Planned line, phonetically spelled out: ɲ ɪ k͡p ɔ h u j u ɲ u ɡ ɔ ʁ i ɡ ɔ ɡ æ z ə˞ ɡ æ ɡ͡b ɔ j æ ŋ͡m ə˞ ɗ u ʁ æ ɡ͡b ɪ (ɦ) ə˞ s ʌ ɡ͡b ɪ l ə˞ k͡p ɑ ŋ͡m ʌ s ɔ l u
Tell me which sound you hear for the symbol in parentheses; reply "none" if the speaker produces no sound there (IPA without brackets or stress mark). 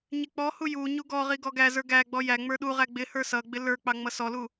h